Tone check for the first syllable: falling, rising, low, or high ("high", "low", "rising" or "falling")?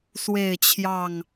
falling